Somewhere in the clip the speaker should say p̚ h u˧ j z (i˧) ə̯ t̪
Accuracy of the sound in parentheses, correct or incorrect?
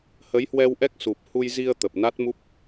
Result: correct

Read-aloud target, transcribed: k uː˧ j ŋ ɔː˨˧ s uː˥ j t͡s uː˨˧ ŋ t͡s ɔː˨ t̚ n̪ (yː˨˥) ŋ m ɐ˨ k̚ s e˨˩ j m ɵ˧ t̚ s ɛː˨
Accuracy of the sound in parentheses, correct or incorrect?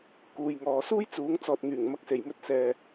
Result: incorrect: yː˨˩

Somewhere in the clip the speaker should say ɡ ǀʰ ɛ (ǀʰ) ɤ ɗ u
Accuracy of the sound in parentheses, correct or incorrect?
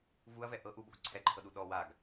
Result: incorrect: ǃʰ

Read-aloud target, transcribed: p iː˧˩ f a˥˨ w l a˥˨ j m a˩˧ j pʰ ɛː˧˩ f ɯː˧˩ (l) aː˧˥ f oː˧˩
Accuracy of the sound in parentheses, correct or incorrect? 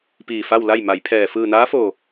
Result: incorrect: n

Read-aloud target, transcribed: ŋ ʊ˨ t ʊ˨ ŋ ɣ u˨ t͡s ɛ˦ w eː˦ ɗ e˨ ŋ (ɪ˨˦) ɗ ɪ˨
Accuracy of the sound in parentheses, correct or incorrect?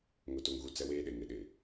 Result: correct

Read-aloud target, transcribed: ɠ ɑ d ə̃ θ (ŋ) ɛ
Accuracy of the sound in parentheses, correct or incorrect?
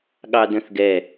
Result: incorrect: ɡ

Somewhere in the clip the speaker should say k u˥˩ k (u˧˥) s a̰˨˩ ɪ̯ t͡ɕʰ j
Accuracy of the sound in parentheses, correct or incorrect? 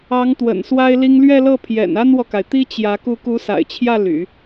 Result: correct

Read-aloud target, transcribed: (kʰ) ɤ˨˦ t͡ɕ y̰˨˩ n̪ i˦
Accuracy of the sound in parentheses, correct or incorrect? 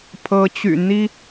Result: incorrect: pʰ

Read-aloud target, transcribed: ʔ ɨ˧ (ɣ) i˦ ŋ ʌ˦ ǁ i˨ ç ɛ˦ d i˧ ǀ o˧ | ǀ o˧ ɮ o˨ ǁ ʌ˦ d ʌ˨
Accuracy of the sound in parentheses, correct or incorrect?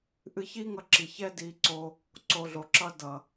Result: incorrect: ç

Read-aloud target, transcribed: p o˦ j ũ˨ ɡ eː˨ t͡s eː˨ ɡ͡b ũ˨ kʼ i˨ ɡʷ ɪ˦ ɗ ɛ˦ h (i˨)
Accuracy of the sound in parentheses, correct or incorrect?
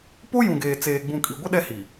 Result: correct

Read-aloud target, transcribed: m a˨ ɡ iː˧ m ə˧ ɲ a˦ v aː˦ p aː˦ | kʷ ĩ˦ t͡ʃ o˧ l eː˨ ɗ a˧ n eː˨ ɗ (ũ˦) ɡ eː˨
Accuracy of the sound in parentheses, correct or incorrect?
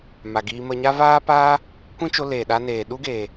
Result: incorrect: u˦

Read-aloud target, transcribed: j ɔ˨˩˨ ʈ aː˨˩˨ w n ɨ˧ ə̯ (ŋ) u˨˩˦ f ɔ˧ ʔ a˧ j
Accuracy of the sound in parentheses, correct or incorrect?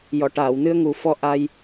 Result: correct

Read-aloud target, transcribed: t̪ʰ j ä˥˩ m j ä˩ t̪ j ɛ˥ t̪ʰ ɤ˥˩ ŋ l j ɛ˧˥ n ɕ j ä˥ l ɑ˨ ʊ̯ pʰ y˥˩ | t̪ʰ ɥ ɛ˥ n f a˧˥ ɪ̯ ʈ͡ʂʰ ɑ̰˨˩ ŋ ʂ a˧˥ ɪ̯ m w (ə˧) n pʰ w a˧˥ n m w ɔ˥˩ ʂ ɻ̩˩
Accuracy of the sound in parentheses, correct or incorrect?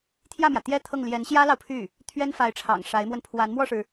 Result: correct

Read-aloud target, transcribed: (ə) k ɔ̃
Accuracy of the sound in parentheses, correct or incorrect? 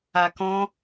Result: incorrect: a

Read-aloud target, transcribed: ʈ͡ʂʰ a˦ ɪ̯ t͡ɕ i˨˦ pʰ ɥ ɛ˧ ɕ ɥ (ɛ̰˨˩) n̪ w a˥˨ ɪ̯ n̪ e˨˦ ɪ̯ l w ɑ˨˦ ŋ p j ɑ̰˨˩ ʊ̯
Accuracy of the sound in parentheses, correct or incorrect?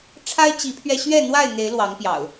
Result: incorrect: ɛ˥˨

